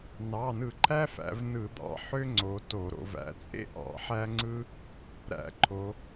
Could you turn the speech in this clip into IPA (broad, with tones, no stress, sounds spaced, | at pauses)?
n ɑ˩˧˩ n ɯ˧˩˧ ǃʰ æ˥ f æ̰˩˧ v n ɯ˧˩˧ d̪ ɑ̰˩˧ ħ ø˥ ŋ͡ǀ o˩˧ t o˧˩˧ ɾ o̰˩˧ v æ̰˩˥ t͡sʼ ḛ˥ ʔ ɑ̰˧˩˧ ħ æ˥ ŋ͡ǀ ɯ˥ | ɾ æ̰˧˩˧ ǃʰ o˩˧